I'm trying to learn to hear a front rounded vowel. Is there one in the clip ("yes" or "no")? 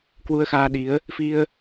no